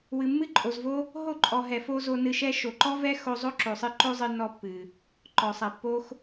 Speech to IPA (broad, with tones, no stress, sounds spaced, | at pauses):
w ɨ˨ mː ɨ˦ ǃʼ o˨ z v o˦ | ɦ o˦˨ ǃʼ ɔ˨ ɦ ɛ˨ f o˦ z o˧ n ɨ˧ ʃ ɛ˦ ʃ o˨ ǃ ɔ˦ v ɛ˦ x o˧ zˤ o˦ ǁ o˨ sˤ ɨ˧ ǃ o˦ zˤ ɨ˧ nː ɔ˧ pː ɨ˨ | ǃ ɔ˨ sˤ ɛ˨ pː o˦ x